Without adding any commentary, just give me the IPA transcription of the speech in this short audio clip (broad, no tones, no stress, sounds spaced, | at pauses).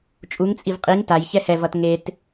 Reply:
t͡ʃʼ u ŋ t͡sʼ i v qʼ i ŋ t a j ç ɛ h ɛ v ʌ t ŋ e t